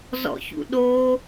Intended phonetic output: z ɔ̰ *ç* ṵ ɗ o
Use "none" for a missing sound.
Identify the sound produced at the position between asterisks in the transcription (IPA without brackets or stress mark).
ç